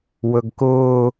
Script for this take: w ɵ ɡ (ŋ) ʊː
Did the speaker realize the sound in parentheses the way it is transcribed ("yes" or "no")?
no